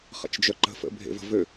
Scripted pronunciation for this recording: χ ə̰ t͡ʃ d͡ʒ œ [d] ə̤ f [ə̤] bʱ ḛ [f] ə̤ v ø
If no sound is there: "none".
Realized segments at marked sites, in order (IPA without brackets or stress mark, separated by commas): ǃ, ə̰, v